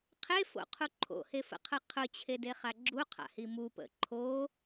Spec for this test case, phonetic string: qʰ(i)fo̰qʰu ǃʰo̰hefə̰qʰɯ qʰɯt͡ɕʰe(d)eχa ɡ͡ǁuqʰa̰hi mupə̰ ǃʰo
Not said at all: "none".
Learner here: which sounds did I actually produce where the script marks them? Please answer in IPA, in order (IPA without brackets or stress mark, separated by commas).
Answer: e, d